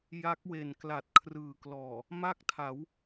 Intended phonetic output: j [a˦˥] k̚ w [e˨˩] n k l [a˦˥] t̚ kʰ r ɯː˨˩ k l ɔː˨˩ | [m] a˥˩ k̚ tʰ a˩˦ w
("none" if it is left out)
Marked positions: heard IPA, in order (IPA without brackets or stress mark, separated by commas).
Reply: a˦˥, e˨˩, a˨˩, m